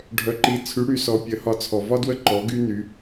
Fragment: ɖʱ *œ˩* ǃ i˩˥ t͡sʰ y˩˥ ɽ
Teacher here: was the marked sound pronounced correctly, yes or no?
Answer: yes